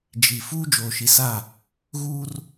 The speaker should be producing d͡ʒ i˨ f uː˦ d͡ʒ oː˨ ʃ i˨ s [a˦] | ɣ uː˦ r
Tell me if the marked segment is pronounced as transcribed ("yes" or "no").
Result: no